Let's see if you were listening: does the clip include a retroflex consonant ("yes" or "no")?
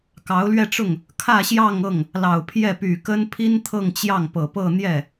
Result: yes